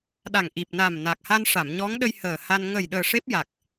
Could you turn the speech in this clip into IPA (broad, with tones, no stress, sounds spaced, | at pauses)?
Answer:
ɗ a˨˩ ŋ ʔ i˨˩ p̚ n a˨˩ m n a˨˩ k̚ h a˧ n ʂ a˨˩˨ m ɲ ɔ˧˥ ŋ ɗ ə˧ j h əː˨˩ h a˧ n ŋ ə˨˩ j ɗ əː˨˩ ʂ e˦˥ p̚ j a˨˩ k̚